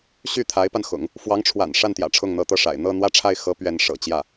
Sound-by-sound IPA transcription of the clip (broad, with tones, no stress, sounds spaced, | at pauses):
ɕ y˥˩ t̪ʰ a˧˥ ɪ̯ p a˧ n x ʊ̰˨˩˦ ŋ | f w ɑ˧˥ ŋ ʈ͡ʂʰ w a̰˨˩ n ʂ a˥˩ n t̪ j ä̰˨˩ ʈ͡ʂʰ ʊ˥˩ ŋ n̪ ɤ˧˥ t̪ ɤ˥˩ ʂ a̰˨˩ ɪ̯ n̪ ɤ˥˧ n̪ w ä˥˧ ʈ͡ʂʰ a˥˩ ɪ̯ x ɤ˧˥ p ɥ ɛ˧˥ n ʂ ɤ̰˨˩ t͡ɕ j ä˥˩